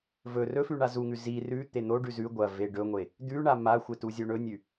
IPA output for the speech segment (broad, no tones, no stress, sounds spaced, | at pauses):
v ɵ r ɵ f ʉ ɳ a z u ŋ ʉ z i r ʉ t̪ e n̪ o ɖ ʉ z ʉ ɡʷ ɐ v e ɖ ɵ ŋʷ e | d̪ ʉ ɳ a m a xʷ e t u zʲ o ɳ ɵ nʲ ʉ